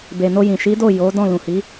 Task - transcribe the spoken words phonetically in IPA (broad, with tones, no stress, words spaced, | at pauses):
be˨no˧jĩ˨ ʃi˨˦do˦˨ jo˨˦ dɔ̃˦˨ lũ˨hi˨˦